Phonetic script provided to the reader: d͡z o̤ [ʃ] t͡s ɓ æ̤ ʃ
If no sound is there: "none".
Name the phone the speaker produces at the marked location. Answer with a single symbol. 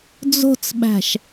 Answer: none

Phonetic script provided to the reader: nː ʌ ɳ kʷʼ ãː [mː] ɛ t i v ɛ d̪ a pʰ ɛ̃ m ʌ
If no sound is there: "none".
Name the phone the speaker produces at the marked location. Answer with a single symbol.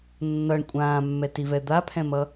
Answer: mː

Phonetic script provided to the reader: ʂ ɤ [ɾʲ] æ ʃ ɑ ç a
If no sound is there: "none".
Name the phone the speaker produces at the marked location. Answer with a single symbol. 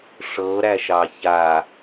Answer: ɾ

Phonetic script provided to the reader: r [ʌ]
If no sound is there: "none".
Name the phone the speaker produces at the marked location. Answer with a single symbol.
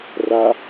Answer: a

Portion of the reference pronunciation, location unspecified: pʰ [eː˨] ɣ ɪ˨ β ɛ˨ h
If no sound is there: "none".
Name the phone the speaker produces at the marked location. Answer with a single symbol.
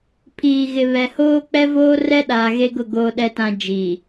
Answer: iː˨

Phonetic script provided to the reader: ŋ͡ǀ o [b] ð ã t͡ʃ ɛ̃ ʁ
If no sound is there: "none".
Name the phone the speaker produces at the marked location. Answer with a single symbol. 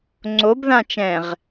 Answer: b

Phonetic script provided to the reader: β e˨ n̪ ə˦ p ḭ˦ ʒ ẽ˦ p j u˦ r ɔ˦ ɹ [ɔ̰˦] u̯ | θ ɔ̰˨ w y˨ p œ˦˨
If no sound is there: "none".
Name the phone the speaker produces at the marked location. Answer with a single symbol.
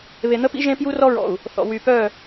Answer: ɔ̰˨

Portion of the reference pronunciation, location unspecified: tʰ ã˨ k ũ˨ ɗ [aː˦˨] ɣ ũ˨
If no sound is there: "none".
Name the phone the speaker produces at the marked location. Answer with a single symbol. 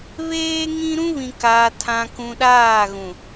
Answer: aː˦˨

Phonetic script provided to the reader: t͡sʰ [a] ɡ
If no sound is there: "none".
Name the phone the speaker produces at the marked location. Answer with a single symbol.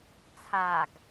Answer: a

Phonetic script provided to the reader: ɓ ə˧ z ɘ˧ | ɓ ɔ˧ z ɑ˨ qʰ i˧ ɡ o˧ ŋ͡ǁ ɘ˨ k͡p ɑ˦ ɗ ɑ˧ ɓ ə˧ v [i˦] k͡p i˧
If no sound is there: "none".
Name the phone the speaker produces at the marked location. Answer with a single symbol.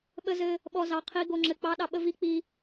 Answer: i˦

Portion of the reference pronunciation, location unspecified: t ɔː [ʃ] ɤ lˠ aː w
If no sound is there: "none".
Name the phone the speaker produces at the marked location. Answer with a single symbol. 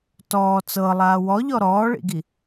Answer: t͡s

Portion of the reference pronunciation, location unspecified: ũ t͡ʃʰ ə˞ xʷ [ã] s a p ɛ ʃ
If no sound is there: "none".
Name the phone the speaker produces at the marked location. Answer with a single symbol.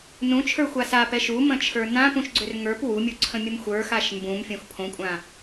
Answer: a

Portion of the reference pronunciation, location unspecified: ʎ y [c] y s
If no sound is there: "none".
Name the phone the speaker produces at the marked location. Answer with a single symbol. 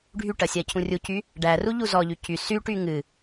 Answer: c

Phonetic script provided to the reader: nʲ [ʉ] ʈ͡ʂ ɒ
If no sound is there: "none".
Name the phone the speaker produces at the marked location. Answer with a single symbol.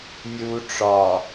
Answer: u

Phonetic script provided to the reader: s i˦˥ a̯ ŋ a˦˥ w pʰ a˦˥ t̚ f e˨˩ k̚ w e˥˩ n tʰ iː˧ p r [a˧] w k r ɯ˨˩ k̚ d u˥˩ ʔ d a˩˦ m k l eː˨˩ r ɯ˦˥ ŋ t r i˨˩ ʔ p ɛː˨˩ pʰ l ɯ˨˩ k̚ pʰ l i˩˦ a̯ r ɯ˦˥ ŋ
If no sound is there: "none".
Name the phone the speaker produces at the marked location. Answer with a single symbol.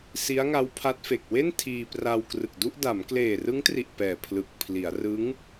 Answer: a˧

